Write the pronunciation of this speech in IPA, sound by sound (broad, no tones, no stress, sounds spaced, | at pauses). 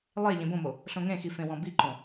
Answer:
lˠ e ʎ ẽ b õ m o | ɬ õ ŋ ẽ x i f ẽ w ɔ̃ b i ǃ õ